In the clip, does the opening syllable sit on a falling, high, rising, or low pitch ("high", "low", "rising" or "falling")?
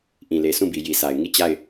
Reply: low